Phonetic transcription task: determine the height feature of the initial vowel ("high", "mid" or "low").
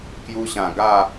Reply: high